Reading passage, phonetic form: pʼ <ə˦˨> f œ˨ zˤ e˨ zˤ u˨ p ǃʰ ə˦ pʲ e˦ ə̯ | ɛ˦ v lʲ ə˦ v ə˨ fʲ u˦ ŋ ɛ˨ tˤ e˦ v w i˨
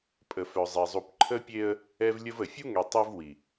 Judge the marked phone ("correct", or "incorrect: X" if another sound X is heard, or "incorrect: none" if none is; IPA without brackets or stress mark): incorrect: ə˨